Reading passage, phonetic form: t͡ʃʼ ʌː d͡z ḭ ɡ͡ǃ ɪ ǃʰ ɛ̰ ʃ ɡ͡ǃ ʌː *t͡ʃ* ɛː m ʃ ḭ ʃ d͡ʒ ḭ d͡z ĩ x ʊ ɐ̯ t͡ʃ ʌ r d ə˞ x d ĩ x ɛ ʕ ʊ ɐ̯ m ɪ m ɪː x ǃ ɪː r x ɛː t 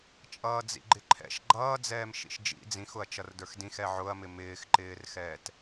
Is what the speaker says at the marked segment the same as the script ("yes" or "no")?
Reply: no